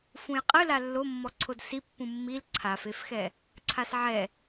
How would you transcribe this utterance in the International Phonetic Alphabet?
f ũ j qʼ ɨ l a lː o mː ɔ ǀʰ o d s i pː ũ mː i l ǀʰ a f e f x ɛ | ǀʰ a s ʕ ɛ

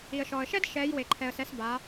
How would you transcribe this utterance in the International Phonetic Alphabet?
i˩ ə̯ ʃ ɔ˩ ə̯ ʃ ɛ˦ d ʃ ɛ˩˧ j w e˩ ǃʰ ɛ˩ ə̯ s ɛ˩˧ s b a˩˧

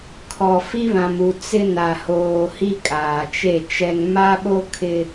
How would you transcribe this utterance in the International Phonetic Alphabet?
kʰ ɔ˨ f i˦ β ã˨ m u˨ t͡s ɪ˦ n a˨ h oː˨ h i˦ kʼ aː˨ t͡ʃ e˦˨ t͡ʃ ɛ˨ ŋ m a˦ ɓ o˦ kʰ ɪ˦

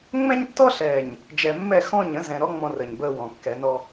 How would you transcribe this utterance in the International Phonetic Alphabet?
ŋ͡m ɛ̃˦ ɲ tː ɔ˦ ɬ ɛː˨ ɲ | d͡ʒ ɛ˨ mː ɛ˦˨ x ɔ̃˦˨ ɲ ə̃˦ z ɛ̃˨ ɾ ɔ˦ ŋ͡m ɔ̃˦ r əː˨ ɲ b əː˦ w ɔ̃˨ kː ɛ˨˦ n ɔ˦

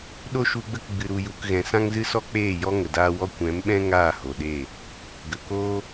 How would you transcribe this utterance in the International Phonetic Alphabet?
ɗ o˦ ʃ u˧ ɡ͡b ə˦ k ɡ͡b ɨ˨ ɾ u˨ j u˨ k ɣ ɛ̃˨ s ã˦ ŋ z ɨ˦ s ɔ˦ k͡p eː˦˨ j ɔ˦ ŋ ə˨ d aː˧ w ɔ˧ kʷ ɛ̃˨˦ m ɓ ɛ̃˦ ŋ aː˦˨ h o˨ ɗ e˦˨ | ɡ ə˨ k oː˦

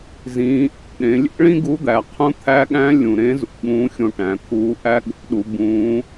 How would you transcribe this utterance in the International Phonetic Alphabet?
z ĩː˩˧ ʔ æ̰˩ ɗ ẽ˩˧ lʲ ḛ˥ ɭ ĩ˥ ɡ u˧˥ d̪ æ˩ qʰ ũ˧˥ t̪ʰ æ˧˥ ɠ æ̃˧˥ lʲ ũ˩ ɾ ẽ˧˥ z ṵ˩ ɠ ũː˧˥ xʲ õ˧ ʈ æ̃˩˧ t̪ʰ uː˧˥ ʔ æ˥ ɠ o̰˧˥ ɗ u˩˧ b ũː˧˥

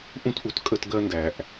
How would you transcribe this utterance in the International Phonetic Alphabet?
ʔ ũ˦ t ʔ u˧ t kʼ ə˦ t ɡ ɜ˦ n d æ˧ ʔ

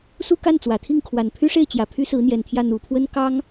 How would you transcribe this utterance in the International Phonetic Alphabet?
s u˥˧ k a˥˩ n t͡s w ä˨˩ t̪ʰ i˥˩ ŋ kʰ w a˨˩ n pʰ y˥ ʂ e˥˩ ɪ̯ t͡ɕ j ä˨˩ pʰ y˥ s ɹ̩˧˥ n̪ j ɛ˨˩ n t̪ʰ j ä˥˩ n̪ u˨˩ pʰ w ə˥ n k ɑ˥ ŋ

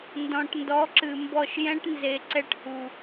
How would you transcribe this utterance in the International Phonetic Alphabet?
n d ɔ̃˨ ʈ n d ɔ˨˦ ǁ ɨ˨ m b ɔ˦˨ ʃ j ɛ̃˦ ʈ n z e˨ ǀ ɛ˦ ʈ h u˨

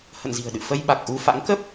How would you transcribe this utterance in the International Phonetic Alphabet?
h ə̰˧˨ n z i̤˨˩ ə̯ ɗ ɨ̰˧˨ f ə˧ j ɓ a˨˩ k̚ ʔ u˧ f a̰˧˥ ŋ k ə˦˥ p̚

